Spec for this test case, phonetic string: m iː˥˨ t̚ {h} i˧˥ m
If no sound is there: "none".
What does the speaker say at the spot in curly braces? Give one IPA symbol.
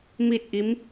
ʔ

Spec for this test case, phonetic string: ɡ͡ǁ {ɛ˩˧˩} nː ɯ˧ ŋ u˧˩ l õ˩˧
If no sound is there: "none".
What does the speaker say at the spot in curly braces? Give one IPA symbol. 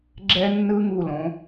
ɛ˧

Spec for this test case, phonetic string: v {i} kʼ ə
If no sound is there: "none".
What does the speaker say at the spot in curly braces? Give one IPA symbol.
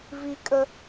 i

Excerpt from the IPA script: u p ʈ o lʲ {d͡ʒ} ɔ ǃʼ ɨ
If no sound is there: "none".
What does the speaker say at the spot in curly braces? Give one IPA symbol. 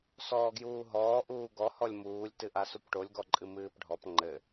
ɡ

